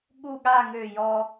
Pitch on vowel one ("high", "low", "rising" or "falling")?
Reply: falling